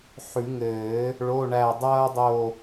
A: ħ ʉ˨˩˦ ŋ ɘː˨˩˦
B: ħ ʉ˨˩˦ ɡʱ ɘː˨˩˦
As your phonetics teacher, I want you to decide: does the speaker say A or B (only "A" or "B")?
A